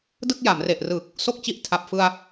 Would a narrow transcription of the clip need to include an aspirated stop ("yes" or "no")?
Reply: yes